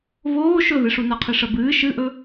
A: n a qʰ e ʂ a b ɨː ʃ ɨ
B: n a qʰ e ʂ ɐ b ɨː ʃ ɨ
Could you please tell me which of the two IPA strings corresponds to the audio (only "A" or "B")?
B